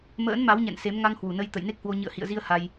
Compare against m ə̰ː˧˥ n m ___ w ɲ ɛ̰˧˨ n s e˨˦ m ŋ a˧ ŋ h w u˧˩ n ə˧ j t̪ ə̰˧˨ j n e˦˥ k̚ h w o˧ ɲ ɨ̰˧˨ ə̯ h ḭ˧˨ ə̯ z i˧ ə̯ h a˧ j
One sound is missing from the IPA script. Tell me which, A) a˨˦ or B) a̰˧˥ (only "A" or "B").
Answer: A